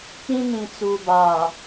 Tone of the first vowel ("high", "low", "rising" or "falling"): high